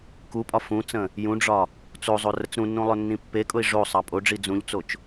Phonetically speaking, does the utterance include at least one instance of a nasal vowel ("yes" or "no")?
yes